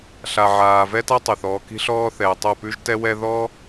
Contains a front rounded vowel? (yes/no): yes